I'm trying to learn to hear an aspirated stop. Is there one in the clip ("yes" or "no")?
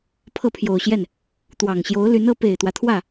yes